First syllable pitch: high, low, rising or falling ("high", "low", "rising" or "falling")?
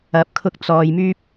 rising